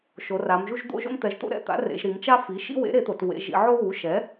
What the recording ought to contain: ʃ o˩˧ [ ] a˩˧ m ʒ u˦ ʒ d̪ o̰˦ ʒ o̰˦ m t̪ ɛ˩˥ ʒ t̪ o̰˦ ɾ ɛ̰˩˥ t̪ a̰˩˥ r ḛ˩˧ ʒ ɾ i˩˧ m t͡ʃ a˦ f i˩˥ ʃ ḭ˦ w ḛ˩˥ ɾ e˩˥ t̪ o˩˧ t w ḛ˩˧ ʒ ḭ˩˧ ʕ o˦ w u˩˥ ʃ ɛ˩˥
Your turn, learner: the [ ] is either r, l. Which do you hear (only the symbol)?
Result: r